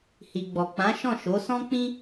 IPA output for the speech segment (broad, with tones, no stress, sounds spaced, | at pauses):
h i˨ ɡ͡b ɔ˨ k͡p ã˨˦ ʃ ɔ̃˦˨ ʃ o˨˦ s ɔ̃˦ k͡p ĩ˦